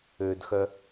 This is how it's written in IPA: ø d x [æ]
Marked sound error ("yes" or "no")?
yes